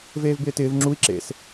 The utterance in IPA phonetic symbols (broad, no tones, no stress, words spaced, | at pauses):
veːvbɪːtɪːv ŋ͡ǁui̯ ǁḛs